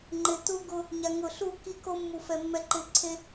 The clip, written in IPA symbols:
ŋ͡ǃ ɪ˨ t u˦ ɡ ʊ˦ | ɲ a˨ ŋ ʊ˨ ɬ u˦˨ k i˦ k o˦ mː u˨ f ɛ˨ mː ɛ˦ ǃ ɪ˦˨ ǀʰ e˦

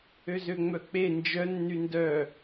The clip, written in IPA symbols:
ø z ø ŋ͡m œ k͡p e n d͡ʒ œ nː y n d œ

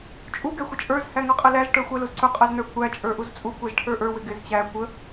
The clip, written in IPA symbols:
t͡ʃʼ u ɡ ɛ xʷ ə t͡ʃʼ ə˞ z h æ ŋ ʌ qʼ ə l æ z ʈ ə˞ xʷ æ l u z ǀ ʊ qʼ ʌ z n ə˞ kʷ æ t͡ʃʼ ə˞ ʔ u z t͡sʼ u kʷ ɛ z ʈʰ ə˞ ʔ ə˞ w ɪ ɡ ɪ z t͡ɕ æ kʷ ə

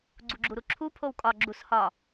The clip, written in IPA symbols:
ɡ͡ǀ u ɡ͡ǁ u ɾ u ǁʰ u pʰ o w kʼ ɒ ɡ͡ǁ u s h ɒ

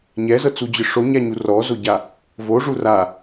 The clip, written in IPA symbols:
ɲ ɛ z ɤ t͡s u d͡ʑ ɯ ʂ o ɲ a ɲ u r ɔ z o ɟ a | v o ʐ u r a

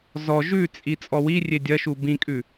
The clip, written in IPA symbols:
z ɔ ʒ ʉ t͡sʼ i t͡sʼ ɔ w i rʲ e dʲ ɐ ʃ u b ĩ kʼ ʉ

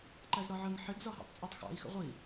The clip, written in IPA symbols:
ǃ æ z ɾ ɒ ʕ ə ŋ ħ ɪ ɡ z ɒ ɦ ɑ̰ tˤ t͡sʼ ɒ tˤ x ɑ̰ i̯ x ə̰ ʁʷ i

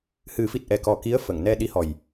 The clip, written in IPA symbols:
h ɨ˨˩˦ f i˨˩ t̚ ʔ ɛ˨˩ k ɔ˨˩ k i˧˥ ə̯ f ə˨˩˨ ŋ n ɛ˧ ɗ i˧˥ h ɔ˨˩ j

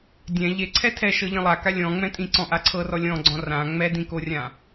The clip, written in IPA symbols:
dʲ ɛ̃ ʎ e ǀʰ ɛ tʰ ɛ ʃ ɤ ʎ ĩ lˠ a k a lʲ ɔ̃ ŋ͡m ɛ̃ tʼ ĩ ǀ ɔ̃ ʔ a ǀʰ ɤ r ɔ lʲ ɔ̃ ɡ͡ǀ ɔ̃ r ã ŋ͡m ɛ d ĩ k o rʲ ã

